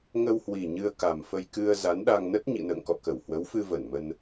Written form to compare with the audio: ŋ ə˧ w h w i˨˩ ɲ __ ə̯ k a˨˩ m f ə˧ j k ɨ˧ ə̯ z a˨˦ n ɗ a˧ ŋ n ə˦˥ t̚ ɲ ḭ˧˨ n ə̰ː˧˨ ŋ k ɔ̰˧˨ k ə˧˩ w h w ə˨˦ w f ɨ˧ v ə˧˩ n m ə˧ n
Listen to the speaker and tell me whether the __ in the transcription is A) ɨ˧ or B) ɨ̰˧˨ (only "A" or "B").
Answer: A